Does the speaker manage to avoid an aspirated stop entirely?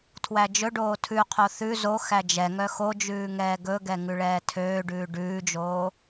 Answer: no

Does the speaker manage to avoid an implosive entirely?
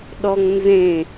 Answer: no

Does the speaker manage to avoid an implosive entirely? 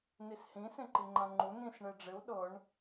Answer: no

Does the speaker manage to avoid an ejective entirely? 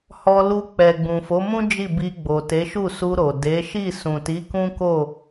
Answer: yes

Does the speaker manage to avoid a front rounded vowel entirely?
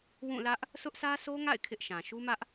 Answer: yes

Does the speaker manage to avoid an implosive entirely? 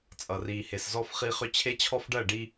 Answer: yes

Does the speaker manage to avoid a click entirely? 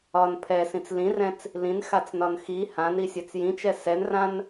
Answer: yes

